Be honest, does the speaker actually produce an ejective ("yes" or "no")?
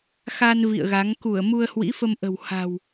no